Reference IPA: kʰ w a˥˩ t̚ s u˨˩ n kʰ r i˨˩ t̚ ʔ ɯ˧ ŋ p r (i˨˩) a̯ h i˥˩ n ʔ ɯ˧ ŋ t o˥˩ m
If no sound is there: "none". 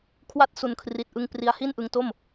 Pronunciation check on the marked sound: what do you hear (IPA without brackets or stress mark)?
i˧